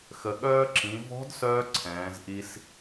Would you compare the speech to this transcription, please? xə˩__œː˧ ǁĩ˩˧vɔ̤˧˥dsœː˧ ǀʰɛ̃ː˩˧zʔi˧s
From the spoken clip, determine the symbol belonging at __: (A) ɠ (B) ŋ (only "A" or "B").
A